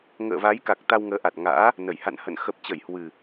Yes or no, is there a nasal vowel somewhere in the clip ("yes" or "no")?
no